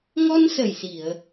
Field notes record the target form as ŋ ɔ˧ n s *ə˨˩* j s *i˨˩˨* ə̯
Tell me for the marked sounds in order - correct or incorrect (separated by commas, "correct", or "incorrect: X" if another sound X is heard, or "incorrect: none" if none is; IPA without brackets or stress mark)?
correct, correct